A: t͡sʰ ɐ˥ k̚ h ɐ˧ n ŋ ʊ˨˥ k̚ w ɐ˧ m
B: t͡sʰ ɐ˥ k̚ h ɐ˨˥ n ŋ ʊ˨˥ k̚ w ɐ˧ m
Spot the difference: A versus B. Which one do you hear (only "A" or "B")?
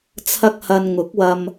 A